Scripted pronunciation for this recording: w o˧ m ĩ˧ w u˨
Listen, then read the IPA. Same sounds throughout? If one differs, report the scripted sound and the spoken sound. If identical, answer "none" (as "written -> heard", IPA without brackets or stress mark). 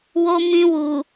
none